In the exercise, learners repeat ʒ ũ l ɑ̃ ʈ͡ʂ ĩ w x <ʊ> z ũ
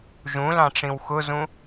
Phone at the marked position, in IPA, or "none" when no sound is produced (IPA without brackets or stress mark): ʊ